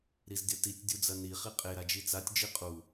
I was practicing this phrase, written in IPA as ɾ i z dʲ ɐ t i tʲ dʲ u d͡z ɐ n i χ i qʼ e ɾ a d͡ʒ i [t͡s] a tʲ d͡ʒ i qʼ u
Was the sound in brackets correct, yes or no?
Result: yes